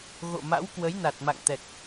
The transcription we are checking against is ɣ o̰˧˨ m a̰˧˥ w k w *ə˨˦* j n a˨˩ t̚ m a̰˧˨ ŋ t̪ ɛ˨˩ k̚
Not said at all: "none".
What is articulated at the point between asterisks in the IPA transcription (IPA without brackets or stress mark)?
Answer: ə˨˦